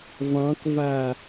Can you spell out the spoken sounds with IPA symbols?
vɑ̃kva

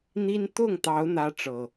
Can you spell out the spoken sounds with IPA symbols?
n̪i˦n t̪ʊ˥˨ŋt̪ɑ˨˦ʊ̯ n̪ä˦ʈ͡ʂɤ˨˩

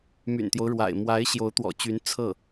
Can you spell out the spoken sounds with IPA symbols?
my̰˨˩nt̪jo˦ʊ̯ɻwa̰˨˩ɪ̯ mwa˧˥ɪ̯ɕjo˧˥ʊ̯ t̪wɔ̰˨˩t͡ɕy˧˥n t͡sʰɤ˥˩

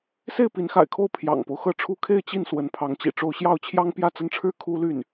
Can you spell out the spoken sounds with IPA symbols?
se˥˩ɪ̯pi˧˥nxa̰˨˩ɪ̯kʰo˥˩ʊ̯ pʰjɑ̰˨˩ŋpo˦ʊ̯xɤ˥˩ʈ͡ʂʰu˥ kʰe˥˧ɪ̯t͡ɕi˥˩n swə˧˥npʰɑ˧˥ŋt͡ɕḭ˨˩ʈ͡ʂo˥˧ʊ̯ ɕjɑ˥˩ʊ̯t͡ɕʰjɑ˥ŋ pjä˥˧t͡sə˥˩nʈ͡ʂʰɻ̩˥ kʰu˥ly˥˩n

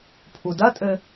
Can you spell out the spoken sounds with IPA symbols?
pʰudɐtʼɘ

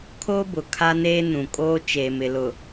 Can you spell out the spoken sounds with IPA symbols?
kʰoː˦bʊ˨ kʰa˦neː˦nũ˨kʼoː˦ t͡ʃeː˨mɪ˨lʊ˨

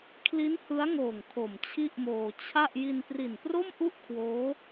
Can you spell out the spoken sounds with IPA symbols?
kʰli˦˥nhɯ˦˥a̯ŋoː˨˩ŋ kʰo˨˩mt͡ɕʰi˥˩ʔmoː˧ t͡ɕʰa˥˩ʔ ji˧npri˨˩npro˥˩mʔu˥˩ʔ kʰwoː˦˥

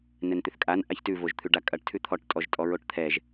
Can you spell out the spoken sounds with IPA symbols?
nɛnt̪ʏθkʼan ʔaçtʉ voʒt̪ʰʉɖakʼɐʈ tʰʉt̪ʰɔʈ tʼɔʒtʼɔɹoʈt̪ʰɛʒ

